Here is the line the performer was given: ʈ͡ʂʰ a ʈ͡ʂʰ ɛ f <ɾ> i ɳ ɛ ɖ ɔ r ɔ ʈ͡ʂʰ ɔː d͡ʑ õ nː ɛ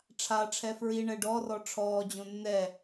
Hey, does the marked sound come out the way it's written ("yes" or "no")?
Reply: no